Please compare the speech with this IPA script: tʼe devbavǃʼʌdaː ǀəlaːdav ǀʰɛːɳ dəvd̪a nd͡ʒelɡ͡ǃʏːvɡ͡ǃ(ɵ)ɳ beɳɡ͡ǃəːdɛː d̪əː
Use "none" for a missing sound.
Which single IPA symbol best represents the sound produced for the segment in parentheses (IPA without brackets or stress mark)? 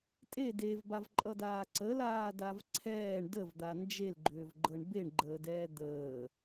ɤ